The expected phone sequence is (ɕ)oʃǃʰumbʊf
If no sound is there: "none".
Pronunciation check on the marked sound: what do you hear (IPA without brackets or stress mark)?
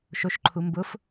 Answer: ʃ